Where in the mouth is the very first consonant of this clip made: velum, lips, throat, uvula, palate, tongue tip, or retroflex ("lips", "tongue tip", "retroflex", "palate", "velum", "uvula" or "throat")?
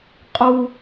uvula